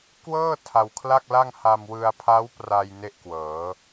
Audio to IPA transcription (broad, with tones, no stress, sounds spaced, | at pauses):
k w ɤː˥˩ tʰ a˧ w kʰ l a˥˩ k̚ l a˥˩ ŋ h a˧ m w ɯ˧ a̯ pʰ a˦˥ w p r a˧ j n e˥˩ ʔ k w ɤː˩˦